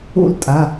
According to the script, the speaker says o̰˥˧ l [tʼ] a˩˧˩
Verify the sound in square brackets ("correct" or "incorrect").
correct